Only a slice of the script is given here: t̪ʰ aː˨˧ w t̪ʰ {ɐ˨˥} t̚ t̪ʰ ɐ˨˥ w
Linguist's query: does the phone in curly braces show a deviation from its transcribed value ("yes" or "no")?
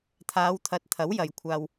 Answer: no